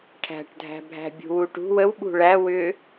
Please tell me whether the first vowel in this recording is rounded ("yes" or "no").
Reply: no